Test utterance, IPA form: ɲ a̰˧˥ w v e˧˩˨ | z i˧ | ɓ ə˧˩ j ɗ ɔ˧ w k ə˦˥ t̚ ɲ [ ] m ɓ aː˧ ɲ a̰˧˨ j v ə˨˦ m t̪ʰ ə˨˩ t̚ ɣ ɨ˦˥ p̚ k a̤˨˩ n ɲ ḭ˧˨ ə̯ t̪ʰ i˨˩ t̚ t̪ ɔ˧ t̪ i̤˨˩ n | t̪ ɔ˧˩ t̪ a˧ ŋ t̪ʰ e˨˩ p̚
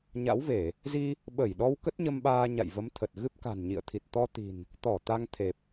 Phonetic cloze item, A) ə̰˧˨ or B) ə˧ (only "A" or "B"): B